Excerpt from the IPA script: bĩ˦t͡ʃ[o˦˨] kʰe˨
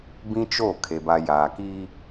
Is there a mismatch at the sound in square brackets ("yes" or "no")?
no